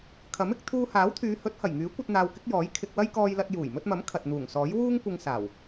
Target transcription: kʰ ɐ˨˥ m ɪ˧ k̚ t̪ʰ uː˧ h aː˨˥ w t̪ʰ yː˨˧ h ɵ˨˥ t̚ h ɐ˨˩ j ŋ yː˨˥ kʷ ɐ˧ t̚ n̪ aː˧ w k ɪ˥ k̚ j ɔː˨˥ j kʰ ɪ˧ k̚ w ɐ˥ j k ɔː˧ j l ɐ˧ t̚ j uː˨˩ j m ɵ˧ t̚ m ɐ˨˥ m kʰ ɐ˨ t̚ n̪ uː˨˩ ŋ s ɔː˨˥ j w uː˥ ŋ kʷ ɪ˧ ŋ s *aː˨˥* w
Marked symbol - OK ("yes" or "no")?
no